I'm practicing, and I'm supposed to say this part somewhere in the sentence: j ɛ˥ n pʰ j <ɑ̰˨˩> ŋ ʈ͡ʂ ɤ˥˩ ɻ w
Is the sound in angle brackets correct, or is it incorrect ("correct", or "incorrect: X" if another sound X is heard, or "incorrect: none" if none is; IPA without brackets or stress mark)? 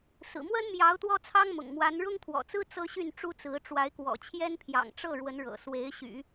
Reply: correct